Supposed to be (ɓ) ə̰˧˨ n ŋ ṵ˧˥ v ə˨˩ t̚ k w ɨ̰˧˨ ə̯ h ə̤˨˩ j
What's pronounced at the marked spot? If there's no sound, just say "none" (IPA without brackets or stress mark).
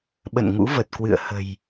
ɓ